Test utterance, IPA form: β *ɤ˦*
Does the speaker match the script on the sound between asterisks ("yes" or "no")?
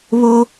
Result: no